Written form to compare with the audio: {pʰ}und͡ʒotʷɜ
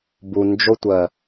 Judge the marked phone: incorrect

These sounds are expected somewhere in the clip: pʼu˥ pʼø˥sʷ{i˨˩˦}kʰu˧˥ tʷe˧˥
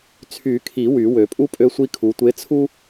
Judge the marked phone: incorrect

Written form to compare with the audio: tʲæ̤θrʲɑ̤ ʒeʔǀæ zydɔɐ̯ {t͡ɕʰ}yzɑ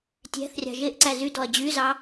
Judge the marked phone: incorrect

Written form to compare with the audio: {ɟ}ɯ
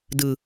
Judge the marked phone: incorrect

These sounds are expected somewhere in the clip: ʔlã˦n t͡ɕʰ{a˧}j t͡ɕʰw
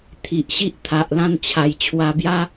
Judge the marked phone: incorrect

